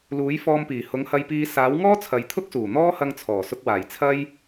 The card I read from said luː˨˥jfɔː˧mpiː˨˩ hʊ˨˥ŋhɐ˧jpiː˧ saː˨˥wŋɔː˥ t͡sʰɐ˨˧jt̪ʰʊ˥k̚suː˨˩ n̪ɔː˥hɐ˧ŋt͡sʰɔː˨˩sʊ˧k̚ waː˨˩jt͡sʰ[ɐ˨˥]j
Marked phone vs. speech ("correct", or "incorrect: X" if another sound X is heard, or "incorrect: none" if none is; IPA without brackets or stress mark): incorrect: ɐ˥